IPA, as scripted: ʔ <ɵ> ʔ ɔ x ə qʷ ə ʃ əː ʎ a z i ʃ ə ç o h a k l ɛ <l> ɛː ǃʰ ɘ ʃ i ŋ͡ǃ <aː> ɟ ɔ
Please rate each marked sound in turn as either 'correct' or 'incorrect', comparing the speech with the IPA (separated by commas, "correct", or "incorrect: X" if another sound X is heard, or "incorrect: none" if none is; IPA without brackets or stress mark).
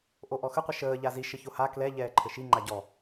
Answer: incorrect: o, incorrect: ʎ, incorrect: a